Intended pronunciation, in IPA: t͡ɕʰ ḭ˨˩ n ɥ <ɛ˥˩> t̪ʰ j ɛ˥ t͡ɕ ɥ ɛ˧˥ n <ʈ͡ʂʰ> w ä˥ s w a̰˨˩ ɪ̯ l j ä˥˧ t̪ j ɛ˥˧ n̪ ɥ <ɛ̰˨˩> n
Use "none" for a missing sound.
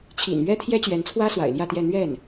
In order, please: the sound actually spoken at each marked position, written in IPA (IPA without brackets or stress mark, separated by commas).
ɛ˥, t͡sʰ, ɛ˥˩